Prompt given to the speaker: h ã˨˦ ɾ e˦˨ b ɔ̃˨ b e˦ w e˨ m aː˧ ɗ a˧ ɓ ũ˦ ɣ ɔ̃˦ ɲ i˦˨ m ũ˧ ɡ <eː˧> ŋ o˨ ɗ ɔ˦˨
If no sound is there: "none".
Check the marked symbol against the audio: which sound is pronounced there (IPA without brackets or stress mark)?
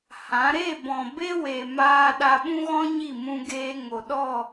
eː˧